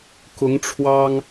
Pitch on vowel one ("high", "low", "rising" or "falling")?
rising